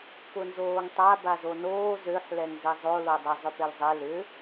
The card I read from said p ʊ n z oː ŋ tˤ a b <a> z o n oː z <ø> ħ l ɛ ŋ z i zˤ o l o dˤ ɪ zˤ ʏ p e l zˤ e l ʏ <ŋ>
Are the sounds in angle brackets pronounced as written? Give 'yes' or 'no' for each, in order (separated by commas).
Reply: yes, yes, no